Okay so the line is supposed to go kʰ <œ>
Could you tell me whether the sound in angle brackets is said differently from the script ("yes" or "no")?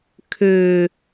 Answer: yes